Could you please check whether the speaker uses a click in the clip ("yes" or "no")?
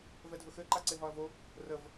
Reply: yes